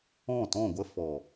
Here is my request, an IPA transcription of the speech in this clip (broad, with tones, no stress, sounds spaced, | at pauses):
ɔ̃˦˨ t ɔ̃˦˨ ɡʷ ə˦ f ɔ˨